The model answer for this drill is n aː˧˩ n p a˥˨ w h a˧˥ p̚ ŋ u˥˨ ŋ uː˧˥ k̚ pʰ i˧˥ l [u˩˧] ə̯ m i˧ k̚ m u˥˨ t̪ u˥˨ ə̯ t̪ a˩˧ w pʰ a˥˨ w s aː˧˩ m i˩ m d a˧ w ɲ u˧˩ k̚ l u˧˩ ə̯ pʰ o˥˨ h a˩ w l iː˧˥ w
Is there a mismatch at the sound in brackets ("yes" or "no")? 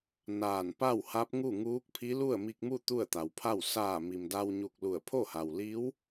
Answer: yes